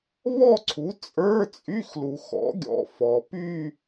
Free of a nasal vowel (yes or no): yes